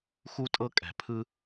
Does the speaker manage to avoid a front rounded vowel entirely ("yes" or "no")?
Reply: yes